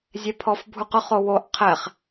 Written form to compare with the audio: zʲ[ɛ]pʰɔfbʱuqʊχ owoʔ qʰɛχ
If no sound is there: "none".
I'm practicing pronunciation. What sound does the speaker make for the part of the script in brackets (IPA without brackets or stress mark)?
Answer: ɛ